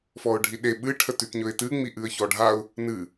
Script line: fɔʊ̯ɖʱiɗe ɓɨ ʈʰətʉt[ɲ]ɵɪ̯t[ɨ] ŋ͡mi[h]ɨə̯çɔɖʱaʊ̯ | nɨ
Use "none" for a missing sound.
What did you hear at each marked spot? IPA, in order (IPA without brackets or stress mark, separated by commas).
ɲ, ɨ, ʔ